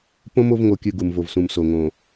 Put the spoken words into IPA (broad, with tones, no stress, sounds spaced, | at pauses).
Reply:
p õ˦ m o˦ v ŋ o˨ kʲ ɨ˨ ɡ u˨ m v o˨ v s ũ˨ m s o˨ ŋ õ˨